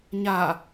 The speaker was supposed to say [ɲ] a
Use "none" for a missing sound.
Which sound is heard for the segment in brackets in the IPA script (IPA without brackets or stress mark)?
ɲ